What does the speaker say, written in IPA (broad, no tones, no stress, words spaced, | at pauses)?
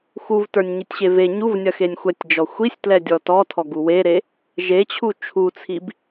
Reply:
xuvtə˞nʲɲitʲɕe ve ɲuvnʲɐxenʲ xʷɛtʲd͡ʒɔ xʷisʲtlɛdʲɔ tɔtʰɔɡu weɾe | ʒet͡ɕʰu t͡ʃʰut͡sʰib